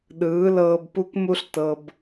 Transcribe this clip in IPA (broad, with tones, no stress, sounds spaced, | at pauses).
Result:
ɗ ɯː˨˦ l ɤː˧ b p u˦ k m u˦ ɬ t ɤ˧ b